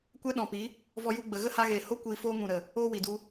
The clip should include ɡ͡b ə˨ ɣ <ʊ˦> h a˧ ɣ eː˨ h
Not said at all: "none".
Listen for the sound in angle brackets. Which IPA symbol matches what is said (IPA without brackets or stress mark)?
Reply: ə˦